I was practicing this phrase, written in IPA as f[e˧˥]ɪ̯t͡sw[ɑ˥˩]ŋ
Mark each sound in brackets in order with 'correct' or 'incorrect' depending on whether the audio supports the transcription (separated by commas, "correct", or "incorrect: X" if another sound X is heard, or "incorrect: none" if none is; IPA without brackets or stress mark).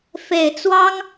incorrect: e˨˩, incorrect: ɑ˥